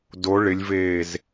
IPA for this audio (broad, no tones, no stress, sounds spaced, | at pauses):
d o ɭ ɪ lʲ v eː z